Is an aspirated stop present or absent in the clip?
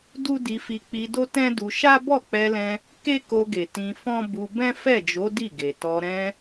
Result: absent